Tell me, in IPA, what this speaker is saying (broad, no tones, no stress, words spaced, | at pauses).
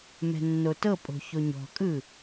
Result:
mɛ̤nːotɤpʼo̤ çoɲɔ̤kʼɯ